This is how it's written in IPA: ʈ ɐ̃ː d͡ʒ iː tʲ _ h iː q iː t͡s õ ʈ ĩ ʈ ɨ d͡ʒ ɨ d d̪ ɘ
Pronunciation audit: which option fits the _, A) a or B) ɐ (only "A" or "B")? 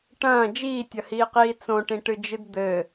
B